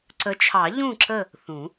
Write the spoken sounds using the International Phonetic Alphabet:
ǀə˨˦t͡ʃʰɑ˨˩˦ ʎũ˦˨ǁə˦˨ | θũ˨˩˦

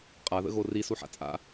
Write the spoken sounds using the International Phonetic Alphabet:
qʼaðə̰ɣo risuħa̰ t͡sʼa̰

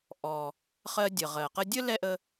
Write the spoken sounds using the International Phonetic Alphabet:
ʔɔ˩ | χɜ˧dʲə˩ ʁɜ˩qə˥ dʲə˥ lɛ˥ʔə˧

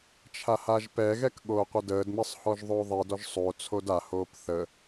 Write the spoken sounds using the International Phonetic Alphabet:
t͡ʃʰahaʒpɛɣɛk ɠoːqʷədəːdmɘsˤ hɔʒðˤoːðˤidɔʒ sˤot͡sʰod ahoːp θə

